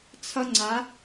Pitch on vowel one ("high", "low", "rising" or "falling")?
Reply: high